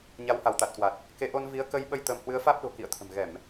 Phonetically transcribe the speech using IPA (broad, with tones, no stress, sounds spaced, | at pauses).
ɲ a˨˦ w h a˧˩ w t̪ a˨˩ t̚ k w a˨˩ t̚ | k e˨˦ ʔ o˧ n v i˨˦ ə̯ k ə˧ j ɓ ə˧ j t̪ ə˧ m h w ɨ˨˦ ə̯ f aː˦˥ p̚ ɗ o̤˨˩ k ḭ˧˨ ə̯ t̪ʰ ə̤˨˩ m ɣ ɛ˧˩˨ m